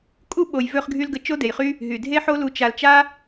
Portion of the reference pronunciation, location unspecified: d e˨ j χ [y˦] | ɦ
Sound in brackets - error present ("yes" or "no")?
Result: no